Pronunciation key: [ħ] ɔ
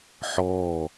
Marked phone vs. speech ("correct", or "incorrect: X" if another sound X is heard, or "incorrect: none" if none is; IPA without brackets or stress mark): correct